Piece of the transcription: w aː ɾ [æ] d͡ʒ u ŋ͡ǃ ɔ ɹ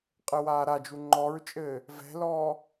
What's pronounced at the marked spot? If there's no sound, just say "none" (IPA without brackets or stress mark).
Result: a